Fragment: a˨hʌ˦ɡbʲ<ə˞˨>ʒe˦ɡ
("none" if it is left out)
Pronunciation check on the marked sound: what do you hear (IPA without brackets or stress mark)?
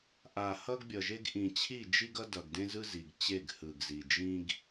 ʌ˨